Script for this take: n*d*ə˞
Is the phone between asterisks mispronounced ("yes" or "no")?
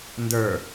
no